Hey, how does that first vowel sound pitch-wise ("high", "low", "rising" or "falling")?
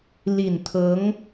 low